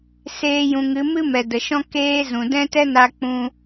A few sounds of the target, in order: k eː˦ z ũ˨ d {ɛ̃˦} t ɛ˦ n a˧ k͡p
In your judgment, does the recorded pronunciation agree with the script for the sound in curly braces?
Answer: yes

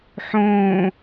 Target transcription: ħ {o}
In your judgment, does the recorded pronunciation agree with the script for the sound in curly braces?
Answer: no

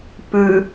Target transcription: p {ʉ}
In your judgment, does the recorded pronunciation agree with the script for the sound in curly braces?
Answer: yes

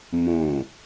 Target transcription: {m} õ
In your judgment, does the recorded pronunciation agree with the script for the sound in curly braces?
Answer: yes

